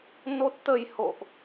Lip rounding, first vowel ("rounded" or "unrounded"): rounded